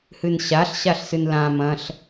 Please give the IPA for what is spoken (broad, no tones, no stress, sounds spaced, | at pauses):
h ɨ n ɕ a ɬ ɕ a ɬ s ɨ n l ã m ɐ̃ ɬ